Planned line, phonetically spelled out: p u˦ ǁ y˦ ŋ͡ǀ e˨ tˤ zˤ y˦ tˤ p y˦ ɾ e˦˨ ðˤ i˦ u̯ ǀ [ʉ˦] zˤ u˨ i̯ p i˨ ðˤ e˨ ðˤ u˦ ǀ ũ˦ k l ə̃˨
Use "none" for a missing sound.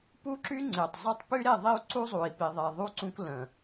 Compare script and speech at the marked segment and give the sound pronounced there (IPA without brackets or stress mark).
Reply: u˦